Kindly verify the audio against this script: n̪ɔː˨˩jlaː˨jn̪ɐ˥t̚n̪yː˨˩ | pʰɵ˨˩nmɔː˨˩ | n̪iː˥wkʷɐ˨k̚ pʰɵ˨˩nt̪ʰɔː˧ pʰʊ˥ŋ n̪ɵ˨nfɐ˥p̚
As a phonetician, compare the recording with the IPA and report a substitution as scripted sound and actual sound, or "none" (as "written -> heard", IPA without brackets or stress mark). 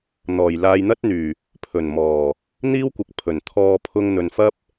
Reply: none